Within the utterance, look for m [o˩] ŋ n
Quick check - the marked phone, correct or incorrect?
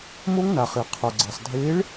incorrect